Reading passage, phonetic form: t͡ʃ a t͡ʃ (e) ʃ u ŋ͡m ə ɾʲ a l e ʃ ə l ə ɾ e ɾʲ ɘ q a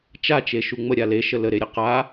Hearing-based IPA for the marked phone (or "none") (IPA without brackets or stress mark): e